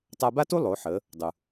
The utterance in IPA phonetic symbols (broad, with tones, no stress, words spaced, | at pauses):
tˤa˧ba˥tu˥ lˠo˩˧ħə˩˧ | dˤu˩